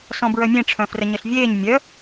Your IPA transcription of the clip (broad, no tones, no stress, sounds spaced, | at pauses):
s ɔ̃ b ɹ œ mʲ ẽ ʈ͡ʂʰ œ̃ f r ə ɲ ə ɬ vʲ eː ɲ mʲ œ